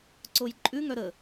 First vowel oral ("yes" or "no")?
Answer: yes